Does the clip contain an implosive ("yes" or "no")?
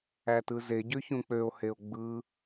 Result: no